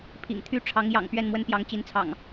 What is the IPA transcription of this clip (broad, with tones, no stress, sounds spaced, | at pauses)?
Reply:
pʰ ḭ˨˩ ŋ t̪ʰ y˦ ʈ͡ʂʰ ɑ˨˦ ŋ j ɑ̰˨˩ ŋ p ɥ ɛ˥˨ n m w ə˦ n p j ɑ˨˦ ŋ t͡ɕ i˨˦ n t͡sʰ ɑ̰˨˩ ŋ